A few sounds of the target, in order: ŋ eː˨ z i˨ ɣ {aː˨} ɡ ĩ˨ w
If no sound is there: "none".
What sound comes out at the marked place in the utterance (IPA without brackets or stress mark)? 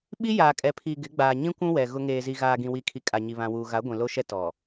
aː˨